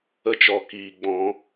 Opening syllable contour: high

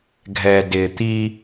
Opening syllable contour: low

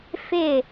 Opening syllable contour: falling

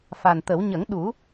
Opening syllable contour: low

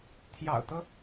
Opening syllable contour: low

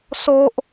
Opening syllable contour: high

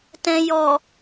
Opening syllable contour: low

